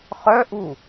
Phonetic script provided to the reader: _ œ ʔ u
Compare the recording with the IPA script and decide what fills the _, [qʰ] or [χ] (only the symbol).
χ